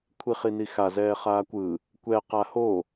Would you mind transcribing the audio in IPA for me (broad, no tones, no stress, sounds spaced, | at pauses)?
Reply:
kʷʰ i χ i n i x a z ɛː χ aː kʷ ɯ | kʷ ɛ q a h o